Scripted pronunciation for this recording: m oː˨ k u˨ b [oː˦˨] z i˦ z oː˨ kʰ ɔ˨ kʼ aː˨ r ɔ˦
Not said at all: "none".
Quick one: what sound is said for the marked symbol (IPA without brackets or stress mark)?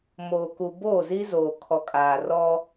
oː˦˨